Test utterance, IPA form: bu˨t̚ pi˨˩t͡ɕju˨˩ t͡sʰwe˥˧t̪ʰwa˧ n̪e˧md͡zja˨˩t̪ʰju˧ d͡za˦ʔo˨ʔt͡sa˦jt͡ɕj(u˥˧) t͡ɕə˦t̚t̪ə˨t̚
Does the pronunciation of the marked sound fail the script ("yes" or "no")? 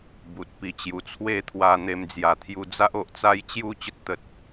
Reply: no